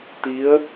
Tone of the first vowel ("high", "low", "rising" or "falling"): rising